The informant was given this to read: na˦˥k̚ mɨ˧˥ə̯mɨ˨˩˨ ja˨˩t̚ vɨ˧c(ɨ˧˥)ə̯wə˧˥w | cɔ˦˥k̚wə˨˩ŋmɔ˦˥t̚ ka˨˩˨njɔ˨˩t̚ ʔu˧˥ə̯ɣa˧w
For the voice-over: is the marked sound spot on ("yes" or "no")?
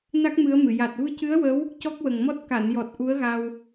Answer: yes